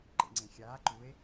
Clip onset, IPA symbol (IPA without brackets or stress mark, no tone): ǃ